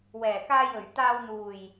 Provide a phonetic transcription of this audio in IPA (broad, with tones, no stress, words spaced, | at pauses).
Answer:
wɛː˨˩kaː˨jɵ˨˩ɥ t̪aː˨wn̪uː˨˩j